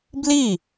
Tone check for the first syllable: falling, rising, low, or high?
falling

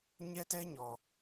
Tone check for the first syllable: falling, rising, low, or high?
high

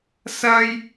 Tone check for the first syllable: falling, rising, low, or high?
high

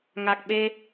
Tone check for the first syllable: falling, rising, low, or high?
low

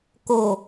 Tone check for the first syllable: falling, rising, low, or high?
low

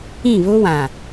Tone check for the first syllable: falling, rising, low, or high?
falling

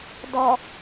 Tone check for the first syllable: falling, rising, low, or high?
low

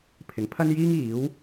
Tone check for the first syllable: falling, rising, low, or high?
rising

